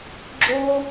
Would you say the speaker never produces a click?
no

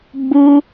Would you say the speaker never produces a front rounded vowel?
yes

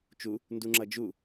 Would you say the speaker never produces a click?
no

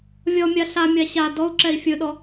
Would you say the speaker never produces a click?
no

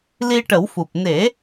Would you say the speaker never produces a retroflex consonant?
no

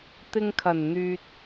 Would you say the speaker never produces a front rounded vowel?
no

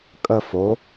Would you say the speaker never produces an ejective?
no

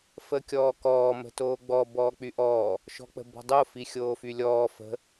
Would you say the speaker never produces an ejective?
yes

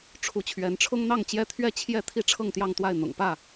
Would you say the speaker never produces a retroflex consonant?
no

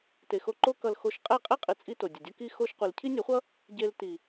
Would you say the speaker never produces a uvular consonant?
no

